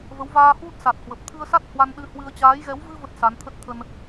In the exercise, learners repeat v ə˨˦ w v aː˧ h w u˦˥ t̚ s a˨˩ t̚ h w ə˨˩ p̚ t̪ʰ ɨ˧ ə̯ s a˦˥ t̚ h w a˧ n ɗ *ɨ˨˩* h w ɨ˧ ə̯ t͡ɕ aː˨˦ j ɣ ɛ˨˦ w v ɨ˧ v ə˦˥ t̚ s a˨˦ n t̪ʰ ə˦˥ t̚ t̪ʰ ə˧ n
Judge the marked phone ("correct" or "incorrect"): incorrect